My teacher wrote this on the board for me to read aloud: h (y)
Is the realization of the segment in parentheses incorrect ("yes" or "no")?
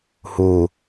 yes